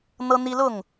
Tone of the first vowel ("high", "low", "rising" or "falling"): high